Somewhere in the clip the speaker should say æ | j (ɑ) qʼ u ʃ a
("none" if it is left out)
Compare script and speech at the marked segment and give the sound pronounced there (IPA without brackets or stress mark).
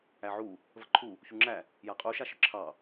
a